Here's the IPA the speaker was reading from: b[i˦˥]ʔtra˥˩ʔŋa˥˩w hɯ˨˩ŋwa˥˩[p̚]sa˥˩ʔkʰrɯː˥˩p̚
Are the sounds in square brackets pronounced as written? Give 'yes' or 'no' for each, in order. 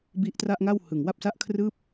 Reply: yes, yes

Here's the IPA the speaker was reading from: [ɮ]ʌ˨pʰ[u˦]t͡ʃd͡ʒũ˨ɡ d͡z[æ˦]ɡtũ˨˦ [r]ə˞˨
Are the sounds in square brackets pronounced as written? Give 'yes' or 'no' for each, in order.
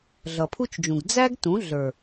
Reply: yes, yes, yes, no

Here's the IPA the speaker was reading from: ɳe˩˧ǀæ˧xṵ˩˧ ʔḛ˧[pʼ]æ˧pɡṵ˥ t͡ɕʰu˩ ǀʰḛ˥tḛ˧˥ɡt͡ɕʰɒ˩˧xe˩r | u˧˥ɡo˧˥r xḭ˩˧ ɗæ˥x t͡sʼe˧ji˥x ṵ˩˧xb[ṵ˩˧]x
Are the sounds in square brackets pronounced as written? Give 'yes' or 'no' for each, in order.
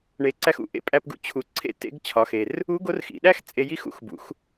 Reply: yes, yes

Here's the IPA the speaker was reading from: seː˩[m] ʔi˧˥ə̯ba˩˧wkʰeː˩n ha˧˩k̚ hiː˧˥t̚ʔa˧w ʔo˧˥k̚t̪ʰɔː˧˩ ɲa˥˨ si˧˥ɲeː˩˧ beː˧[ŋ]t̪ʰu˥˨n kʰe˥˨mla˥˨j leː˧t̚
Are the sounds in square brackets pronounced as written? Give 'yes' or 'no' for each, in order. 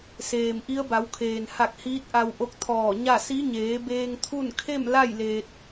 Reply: yes, yes

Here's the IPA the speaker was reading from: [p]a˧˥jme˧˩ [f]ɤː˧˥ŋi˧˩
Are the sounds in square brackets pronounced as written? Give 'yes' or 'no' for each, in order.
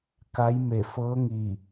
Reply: no, yes

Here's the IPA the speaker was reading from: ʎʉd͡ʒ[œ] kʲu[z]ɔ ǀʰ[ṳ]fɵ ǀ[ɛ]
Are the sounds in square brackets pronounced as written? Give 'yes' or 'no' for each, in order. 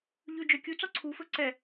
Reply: yes, no, no, yes

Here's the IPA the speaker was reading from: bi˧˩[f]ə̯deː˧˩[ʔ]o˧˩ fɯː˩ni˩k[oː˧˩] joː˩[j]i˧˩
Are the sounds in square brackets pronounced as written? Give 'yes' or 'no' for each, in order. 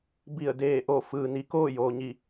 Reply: no, yes, no, no

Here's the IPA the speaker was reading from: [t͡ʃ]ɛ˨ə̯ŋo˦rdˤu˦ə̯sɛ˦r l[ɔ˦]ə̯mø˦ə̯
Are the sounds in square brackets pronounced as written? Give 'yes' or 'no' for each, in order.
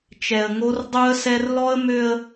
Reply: yes, yes

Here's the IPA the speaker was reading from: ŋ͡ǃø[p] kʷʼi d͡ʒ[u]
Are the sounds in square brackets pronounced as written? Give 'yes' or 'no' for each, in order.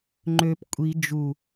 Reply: yes, yes

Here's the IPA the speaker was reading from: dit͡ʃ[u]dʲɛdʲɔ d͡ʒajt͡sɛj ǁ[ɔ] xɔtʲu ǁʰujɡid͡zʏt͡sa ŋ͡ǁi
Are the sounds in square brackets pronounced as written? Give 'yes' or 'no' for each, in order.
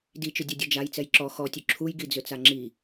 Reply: no, yes

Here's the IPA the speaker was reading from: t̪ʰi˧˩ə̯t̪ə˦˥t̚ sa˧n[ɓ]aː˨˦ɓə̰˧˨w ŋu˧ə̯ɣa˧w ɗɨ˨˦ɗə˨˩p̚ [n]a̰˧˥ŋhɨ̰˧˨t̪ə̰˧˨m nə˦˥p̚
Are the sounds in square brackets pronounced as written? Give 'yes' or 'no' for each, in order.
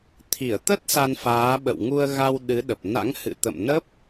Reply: no, yes

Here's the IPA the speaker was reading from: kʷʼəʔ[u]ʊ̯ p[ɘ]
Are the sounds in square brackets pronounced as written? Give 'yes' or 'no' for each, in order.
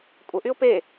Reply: no, no

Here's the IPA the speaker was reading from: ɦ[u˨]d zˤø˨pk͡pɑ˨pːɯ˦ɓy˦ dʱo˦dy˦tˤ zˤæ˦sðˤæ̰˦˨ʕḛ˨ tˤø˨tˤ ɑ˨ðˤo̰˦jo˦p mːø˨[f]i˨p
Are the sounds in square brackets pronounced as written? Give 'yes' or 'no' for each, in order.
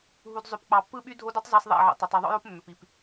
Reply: yes, no

